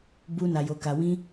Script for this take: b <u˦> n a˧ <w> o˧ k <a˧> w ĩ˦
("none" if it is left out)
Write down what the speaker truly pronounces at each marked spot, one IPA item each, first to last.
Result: u˦, j, a˧

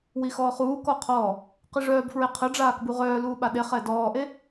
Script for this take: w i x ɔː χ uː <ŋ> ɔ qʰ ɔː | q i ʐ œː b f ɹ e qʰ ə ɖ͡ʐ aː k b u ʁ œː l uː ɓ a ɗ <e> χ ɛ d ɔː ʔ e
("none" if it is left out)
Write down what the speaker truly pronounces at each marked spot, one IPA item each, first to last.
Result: k, e

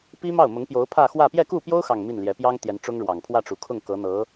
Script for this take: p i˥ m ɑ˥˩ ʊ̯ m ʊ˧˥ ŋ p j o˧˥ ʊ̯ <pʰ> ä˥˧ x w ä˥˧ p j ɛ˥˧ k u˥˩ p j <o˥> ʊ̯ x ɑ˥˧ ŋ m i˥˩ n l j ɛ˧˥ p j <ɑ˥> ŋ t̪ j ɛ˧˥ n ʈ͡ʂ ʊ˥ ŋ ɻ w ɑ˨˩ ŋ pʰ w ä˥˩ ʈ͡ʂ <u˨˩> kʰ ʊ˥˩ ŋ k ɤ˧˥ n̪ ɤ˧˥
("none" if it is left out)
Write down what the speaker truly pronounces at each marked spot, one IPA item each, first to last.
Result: pʰ, o˥, ɑ˥, u˨˩

